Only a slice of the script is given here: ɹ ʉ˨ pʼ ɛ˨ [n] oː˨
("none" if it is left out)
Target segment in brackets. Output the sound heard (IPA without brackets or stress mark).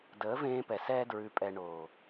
ɳ